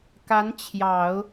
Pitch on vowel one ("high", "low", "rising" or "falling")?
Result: rising